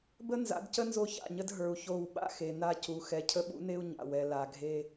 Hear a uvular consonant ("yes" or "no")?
no